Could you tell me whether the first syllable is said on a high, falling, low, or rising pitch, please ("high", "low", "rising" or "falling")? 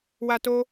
high